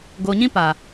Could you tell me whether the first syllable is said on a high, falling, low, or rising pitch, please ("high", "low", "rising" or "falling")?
low